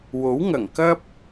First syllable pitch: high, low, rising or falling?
rising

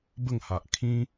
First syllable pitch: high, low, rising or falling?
falling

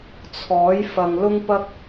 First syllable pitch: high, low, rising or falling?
rising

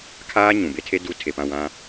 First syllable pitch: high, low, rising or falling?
high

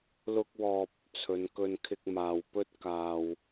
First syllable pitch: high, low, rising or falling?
high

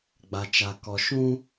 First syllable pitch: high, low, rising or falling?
low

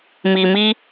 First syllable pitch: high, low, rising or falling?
low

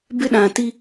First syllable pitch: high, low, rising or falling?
high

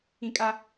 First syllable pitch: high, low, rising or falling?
high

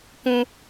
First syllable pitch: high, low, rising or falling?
high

